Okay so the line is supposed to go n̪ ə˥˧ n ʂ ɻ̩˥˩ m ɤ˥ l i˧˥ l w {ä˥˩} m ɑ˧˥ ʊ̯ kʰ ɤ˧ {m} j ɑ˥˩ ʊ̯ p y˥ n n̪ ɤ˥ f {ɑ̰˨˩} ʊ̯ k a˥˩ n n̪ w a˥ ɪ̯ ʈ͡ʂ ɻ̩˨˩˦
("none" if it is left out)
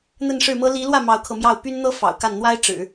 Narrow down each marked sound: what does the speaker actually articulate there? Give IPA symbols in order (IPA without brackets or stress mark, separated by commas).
ä˥˩, m, ɑ̰˨˩